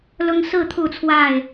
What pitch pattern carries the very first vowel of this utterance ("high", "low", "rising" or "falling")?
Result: high